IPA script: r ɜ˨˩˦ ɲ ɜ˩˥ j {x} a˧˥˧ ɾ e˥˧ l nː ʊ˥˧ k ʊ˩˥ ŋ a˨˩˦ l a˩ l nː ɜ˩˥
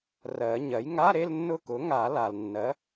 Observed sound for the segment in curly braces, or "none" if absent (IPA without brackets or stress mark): ŋ